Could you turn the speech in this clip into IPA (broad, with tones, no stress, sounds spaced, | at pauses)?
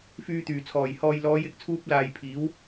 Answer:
f yː˨ t̪ yː˨˩ t͡sʰ ɔː˨˩ j h ɔː˨ j l ɔː˨˧ j ɪ˨ k̚ t͡sʰ uː˧ p̚ l aː˨ j pʰ iː˨˥ w